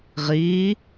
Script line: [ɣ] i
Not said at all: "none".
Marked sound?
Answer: ʁ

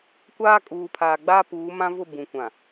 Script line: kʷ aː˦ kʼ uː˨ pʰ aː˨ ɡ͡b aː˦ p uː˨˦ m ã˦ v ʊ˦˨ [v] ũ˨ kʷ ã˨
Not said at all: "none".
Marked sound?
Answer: b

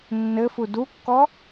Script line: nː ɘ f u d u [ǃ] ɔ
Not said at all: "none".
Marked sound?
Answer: kː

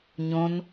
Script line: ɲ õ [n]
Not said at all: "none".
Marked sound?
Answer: n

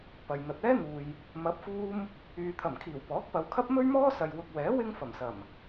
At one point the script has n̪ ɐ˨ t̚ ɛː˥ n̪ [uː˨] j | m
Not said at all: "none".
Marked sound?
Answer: uː˨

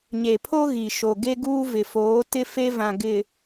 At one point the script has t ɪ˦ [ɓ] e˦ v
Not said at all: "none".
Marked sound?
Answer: f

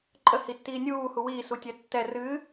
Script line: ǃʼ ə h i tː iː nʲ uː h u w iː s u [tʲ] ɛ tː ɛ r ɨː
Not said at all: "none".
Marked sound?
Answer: tʲ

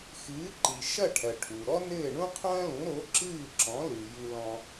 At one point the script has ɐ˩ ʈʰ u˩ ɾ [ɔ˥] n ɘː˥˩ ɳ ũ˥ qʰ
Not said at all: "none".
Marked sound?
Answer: ɔ˥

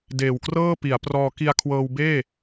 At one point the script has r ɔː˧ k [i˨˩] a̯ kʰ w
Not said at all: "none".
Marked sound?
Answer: i˧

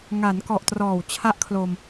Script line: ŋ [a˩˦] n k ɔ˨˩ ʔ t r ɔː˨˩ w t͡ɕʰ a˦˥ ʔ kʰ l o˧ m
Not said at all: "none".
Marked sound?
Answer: a˩˦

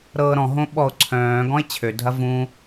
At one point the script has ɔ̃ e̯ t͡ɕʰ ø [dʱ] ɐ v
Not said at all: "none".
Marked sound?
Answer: dʱ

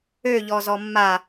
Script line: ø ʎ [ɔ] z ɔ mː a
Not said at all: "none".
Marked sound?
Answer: ɔ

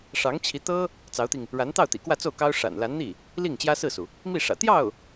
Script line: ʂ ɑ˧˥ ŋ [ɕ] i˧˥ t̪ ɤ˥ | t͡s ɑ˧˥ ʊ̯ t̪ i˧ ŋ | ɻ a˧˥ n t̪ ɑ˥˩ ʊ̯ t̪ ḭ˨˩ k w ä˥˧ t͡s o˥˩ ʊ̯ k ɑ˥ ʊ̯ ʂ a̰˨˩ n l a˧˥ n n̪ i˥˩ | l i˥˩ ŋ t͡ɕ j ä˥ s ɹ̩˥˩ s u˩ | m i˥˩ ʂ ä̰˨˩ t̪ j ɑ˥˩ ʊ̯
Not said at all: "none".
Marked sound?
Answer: t͡ɕʰ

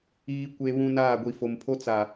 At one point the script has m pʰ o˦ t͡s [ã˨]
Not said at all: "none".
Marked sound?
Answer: a˨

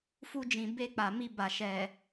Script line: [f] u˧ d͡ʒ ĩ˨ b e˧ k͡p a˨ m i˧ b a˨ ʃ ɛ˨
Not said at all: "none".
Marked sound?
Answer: f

